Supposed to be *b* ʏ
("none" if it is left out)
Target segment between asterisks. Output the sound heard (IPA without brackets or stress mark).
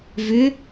v